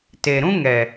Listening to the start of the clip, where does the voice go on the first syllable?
low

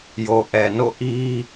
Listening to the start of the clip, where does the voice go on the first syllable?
low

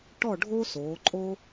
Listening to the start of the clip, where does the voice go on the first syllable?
falling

